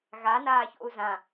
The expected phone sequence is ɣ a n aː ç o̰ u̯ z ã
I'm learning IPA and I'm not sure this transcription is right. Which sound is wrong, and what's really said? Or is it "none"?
none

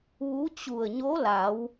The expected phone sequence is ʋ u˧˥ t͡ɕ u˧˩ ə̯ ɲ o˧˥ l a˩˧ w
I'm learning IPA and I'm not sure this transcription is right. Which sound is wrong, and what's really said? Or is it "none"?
none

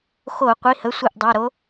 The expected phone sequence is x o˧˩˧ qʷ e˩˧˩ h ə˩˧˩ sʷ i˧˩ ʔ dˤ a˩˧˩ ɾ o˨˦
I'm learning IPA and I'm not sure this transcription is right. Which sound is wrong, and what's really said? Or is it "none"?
e˩˧˩ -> i˩˧˩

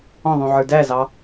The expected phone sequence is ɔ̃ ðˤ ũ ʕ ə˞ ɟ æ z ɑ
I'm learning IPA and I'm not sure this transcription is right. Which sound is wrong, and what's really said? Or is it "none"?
ɟ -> d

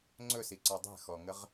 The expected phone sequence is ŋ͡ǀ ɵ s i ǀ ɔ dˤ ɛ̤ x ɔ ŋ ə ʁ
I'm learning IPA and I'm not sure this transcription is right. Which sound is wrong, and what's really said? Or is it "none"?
none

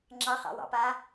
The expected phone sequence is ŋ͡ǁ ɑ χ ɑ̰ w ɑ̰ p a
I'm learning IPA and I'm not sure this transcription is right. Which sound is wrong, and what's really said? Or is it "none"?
none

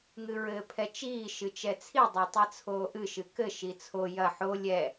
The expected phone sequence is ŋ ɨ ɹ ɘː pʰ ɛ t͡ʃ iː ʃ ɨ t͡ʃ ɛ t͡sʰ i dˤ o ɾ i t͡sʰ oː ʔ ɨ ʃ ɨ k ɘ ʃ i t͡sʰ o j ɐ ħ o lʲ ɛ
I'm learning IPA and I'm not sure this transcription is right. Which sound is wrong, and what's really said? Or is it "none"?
ɾ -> tˤ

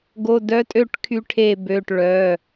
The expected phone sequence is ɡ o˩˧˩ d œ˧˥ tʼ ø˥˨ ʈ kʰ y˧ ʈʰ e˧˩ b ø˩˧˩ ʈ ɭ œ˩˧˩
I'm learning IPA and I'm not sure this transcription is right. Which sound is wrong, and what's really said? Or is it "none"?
none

